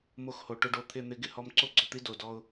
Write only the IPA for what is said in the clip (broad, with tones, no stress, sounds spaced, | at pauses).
m o˧ x h o˨ ʈ ʊ˧ ɖ o˧ t̪ʰ ɪ˦˨ n̪ ɪ˧ ɡ ɪ˦ h ɔ˧ m ǀ o˦ ɡ͡ǀ ɔ˨ t̪ i˦ d o˨ d ɔ˧ ʊ̯